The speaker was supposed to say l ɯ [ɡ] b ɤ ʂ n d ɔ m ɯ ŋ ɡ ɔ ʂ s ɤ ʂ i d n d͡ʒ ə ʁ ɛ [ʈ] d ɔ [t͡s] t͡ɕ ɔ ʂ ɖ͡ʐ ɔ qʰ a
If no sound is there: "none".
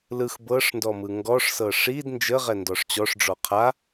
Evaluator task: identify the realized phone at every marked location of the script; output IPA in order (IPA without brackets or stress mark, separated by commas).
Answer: x, n, ʂ